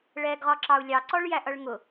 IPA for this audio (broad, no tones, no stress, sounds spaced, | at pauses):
ɭ ɛ ɡ ʁ ɒ ǁ ɑ u̯ lʲ ɑ ǀ ɔ ɭ j æ ʔ ʌ ɭ ŋ ʊ